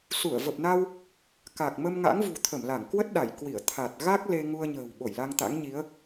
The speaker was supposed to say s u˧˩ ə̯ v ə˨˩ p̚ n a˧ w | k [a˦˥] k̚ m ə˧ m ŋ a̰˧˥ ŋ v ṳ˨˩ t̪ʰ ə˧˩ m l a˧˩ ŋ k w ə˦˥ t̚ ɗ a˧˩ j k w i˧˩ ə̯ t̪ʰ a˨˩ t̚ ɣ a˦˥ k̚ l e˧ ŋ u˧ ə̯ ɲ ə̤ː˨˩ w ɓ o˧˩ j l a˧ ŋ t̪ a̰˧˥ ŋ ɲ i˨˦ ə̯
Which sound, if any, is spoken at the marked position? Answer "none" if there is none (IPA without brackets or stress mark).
a˨˩